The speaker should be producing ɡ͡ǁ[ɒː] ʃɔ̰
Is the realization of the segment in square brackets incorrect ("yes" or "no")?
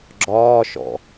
no